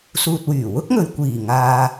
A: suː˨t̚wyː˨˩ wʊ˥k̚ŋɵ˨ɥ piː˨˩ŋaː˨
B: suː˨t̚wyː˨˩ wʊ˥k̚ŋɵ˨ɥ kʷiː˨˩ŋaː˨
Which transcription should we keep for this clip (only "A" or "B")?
B